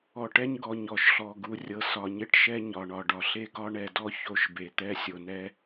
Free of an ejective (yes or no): yes